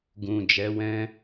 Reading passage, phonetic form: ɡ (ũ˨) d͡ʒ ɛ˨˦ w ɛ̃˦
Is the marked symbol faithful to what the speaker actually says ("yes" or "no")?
yes